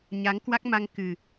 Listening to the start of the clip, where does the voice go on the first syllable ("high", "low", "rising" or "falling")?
rising